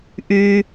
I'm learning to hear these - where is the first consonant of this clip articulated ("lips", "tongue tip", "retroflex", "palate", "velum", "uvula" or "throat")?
throat